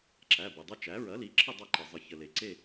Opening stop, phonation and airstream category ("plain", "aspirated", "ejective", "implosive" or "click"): click